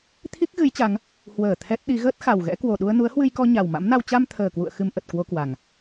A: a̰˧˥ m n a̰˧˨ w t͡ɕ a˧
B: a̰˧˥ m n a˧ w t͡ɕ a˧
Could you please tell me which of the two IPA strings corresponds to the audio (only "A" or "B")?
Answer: B